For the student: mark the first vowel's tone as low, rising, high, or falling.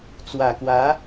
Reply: low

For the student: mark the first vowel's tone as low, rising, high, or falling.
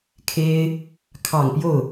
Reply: high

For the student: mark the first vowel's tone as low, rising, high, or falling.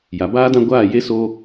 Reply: low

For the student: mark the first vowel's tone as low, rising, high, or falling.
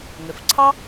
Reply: low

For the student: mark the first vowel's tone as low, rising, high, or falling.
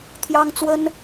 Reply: high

